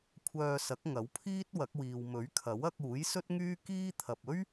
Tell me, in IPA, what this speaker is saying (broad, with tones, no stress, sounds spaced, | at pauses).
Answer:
kʷʰ œː˧ s ɐ˨˥ k̚ ŋ ɐ˨˥ w pʰ iː˥ t̚ w ɐ˨˥ k̚ w iː˨ w m ɵ˨˥ ɥ kʰ ɐ˨˥ w ɐ˧ k̚ uː˨˥ j s ɵ˥ t̚ ŋ yː˥ k iː˥ t̪ʰ ɐ˨ p̚ ɵ˥ ɥ